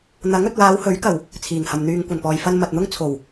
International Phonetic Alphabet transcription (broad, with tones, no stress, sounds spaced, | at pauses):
n̪ ɐ˨˥ ŋ ɵ˨ t̚ w aː˨˧ w h ɵ˨˥ ɥ k ɐ˨˩ w | t͡sʰ iː˨˩ ŋ h ɐ˨ m n̪ yː˨ ŋ kʷ ɐ˨˩ n p ɔː˨ j f ɐ˧ n m ɐ˨ t̚ n̪ ʊ˥ ŋ t͡sʰ o˨˩ w